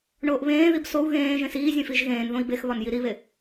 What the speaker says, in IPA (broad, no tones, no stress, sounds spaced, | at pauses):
ɳ oː ʔ β ẽː ð i b s o u̯ ɣ ẽː ʒ ẽ s iː zʲ ẽ f i ʒ ɣ ẽː n ð õ i̯ b e x β ɒ n j i ɾ i β e